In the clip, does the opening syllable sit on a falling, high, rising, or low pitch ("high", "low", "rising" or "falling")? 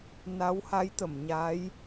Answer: rising